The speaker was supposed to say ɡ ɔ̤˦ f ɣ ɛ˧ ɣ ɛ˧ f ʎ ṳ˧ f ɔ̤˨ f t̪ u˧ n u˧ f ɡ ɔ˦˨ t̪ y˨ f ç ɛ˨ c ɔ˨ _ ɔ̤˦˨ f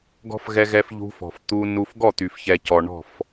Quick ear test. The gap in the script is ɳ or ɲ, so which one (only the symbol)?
ɳ